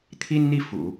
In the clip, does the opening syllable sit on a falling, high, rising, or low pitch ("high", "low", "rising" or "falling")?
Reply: high